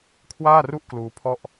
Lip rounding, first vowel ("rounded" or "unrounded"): unrounded